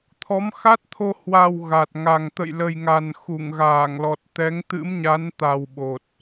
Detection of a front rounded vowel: absent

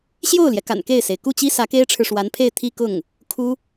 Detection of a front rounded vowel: absent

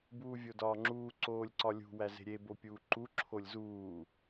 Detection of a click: present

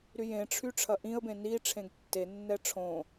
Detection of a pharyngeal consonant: absent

